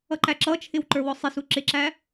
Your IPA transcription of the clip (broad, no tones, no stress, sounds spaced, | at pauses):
ʌ ǃ æ ǁ ʌ t͡ʃʰ ɪ w ǃ ə˞ w ɔ sˤ ɪ s u ǁ ɪ ǁ æ